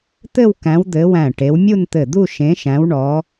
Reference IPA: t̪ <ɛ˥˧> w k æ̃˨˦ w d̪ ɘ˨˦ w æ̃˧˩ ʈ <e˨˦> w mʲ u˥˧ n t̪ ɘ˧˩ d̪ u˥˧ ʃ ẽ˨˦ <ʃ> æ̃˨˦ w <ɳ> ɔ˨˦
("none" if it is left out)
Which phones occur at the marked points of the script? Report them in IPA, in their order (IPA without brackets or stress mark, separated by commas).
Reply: ɘ˥˧, e˨˦, ʃ, ɳ